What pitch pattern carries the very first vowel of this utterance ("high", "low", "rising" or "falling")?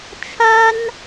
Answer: high